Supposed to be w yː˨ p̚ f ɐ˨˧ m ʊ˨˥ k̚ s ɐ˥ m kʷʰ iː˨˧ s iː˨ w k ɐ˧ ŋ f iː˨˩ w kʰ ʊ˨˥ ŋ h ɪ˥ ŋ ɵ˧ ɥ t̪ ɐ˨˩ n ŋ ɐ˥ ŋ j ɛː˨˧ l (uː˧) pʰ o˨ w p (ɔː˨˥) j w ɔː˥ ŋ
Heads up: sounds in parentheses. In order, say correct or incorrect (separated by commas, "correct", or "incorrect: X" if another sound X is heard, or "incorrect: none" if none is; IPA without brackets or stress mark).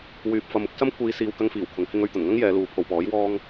incorrect: uː˨, correct